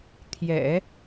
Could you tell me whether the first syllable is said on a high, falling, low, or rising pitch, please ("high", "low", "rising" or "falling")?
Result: low